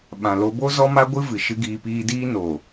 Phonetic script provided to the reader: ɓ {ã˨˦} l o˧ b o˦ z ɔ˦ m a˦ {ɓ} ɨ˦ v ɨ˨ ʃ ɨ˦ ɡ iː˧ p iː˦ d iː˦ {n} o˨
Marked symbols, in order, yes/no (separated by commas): no, no, yes